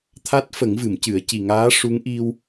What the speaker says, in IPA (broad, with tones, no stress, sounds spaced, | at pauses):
t̪ʰ a˦˥ t̚ f ə˨˩˦ ŋ v ɨ˨˩˨ m c ɨ˨˩˦ ə̯ c i˨˩ ŋ aː˧˥ ʂ u˧˥ ŋ ʔ i˧ w